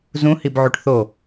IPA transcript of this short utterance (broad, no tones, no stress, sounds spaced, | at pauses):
z ũ h i b ʕ u ʈ θ o